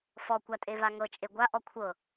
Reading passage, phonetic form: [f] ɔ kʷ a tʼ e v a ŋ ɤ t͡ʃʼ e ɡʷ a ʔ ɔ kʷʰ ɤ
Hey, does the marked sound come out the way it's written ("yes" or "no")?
yes